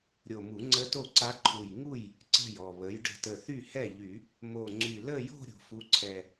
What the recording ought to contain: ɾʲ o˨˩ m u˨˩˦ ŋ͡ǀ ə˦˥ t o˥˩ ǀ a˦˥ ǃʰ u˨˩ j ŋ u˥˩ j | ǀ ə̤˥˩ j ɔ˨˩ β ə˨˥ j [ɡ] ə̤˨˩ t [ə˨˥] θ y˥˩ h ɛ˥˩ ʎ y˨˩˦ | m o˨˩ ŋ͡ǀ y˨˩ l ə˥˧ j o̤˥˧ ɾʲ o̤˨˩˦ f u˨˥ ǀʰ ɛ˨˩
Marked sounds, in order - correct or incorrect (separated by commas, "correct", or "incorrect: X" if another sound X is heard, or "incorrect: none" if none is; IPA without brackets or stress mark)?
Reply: incorrect: ɖ, incorrect: ə˨˩